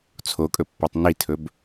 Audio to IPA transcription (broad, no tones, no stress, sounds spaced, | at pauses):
t͡sʰ o kʼ ɵ pː a tˤ n i tʰ ɵ b